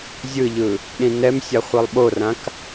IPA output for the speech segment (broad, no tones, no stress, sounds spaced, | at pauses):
zʲ ɯ ʎ ɯ | ɗ ĩ n ɛ m sʲ a χʷ ɯ lˠ ɓ o r ã k